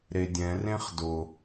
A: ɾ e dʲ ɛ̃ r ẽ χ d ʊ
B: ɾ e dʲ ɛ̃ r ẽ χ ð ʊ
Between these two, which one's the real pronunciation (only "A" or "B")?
A